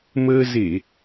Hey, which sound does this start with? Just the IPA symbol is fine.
m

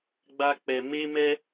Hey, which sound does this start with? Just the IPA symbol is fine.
ɡ͡b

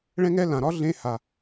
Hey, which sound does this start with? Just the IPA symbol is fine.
ɭ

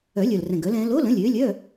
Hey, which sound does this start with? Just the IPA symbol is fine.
œ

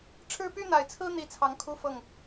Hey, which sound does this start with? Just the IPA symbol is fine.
ʈ͡ʂʰ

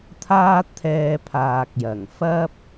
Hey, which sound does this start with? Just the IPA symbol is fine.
t̪ʰ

